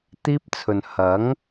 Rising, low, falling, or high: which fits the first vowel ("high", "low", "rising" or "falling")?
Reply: high